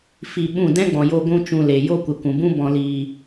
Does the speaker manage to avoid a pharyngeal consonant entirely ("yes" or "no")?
yes